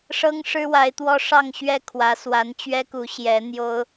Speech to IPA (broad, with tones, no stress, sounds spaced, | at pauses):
ʂ ɤ˥ ŋ ʂ ɻ̩˥ w a˧˥ ɪ̯ t̪ w ɔ˥ ʂ ɑ˥˧ ŋ ɕ ɥ ɛ˥˩ kʰ w ä˧˥ s w a˧˥ n t͡ɕ ɥ ɛ˥ k u˧˥ ɕ j ɛ˧˥ n̪ j o˥ ʊ̯